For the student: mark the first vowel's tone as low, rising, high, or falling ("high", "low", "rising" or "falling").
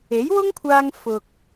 rising